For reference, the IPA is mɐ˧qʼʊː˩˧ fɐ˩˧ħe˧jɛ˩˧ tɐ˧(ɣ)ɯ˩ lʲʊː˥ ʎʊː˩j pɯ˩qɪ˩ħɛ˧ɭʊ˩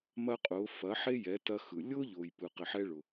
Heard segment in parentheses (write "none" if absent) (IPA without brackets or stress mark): x